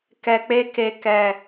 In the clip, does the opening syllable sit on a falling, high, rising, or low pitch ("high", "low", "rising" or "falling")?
low